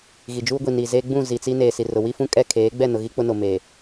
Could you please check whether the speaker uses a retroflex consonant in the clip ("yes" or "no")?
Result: no